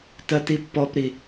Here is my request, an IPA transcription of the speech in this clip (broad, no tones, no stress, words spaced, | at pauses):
tɜtipːɔpɾi